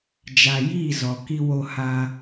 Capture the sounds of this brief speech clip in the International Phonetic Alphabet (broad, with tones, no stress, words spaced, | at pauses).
d͡ʒa˨jiː˦˨ zɔ˨ ki˦wo˦ha˦